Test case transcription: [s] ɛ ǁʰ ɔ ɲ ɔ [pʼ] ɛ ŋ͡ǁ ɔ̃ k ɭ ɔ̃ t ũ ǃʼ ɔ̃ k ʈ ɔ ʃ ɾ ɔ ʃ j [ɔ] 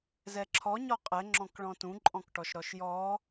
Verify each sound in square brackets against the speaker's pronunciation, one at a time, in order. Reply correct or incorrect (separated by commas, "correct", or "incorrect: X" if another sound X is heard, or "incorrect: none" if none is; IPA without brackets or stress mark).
incorrect: z, incorrect: qʼ, correct